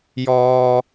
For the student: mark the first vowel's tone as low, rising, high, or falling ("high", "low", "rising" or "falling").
high